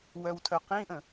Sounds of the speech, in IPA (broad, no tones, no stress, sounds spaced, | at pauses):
w œ w tʰ œ q ĩ ʔ ə̃